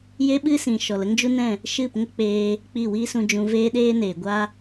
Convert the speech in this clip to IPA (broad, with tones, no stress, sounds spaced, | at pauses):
j e˦ ɓ ɨ˦ s ĩ˨ ʃ ɔ˨ l ə˦ ŋ d͡ʒ u˦ n ɛ̃˦˨ | ʃ ɨ˦˨ p ŋ ə˦ k͡p eː˧ | k͡p i˦˨ w iː˦ s ũ˧ d͡ʒ ũ˧ v eː˦ ɗ eː˦ n eː˨ ɡʷ a˦